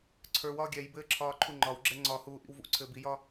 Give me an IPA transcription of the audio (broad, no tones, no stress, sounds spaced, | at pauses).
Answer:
ǀʰ ə˞ w ɒː ɡʲ ɛ j b ɘː ǁʰ ɒː ǃʰ u ŋ͡ǃ ɒ w ɡ͡ǁ ɛ ŋ͡ǀ ɒ h uː ʔ ḭ w v ṵ ǀʰ ɘː b i j ɒ